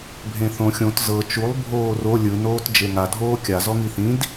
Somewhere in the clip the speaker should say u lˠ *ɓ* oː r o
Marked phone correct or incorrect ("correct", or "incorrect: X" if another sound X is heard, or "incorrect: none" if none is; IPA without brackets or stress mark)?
incorrect: bʱ